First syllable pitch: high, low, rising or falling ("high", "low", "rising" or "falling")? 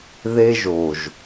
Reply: high